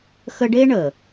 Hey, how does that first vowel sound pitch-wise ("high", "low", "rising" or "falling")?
high